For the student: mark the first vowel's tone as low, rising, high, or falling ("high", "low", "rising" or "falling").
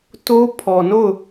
high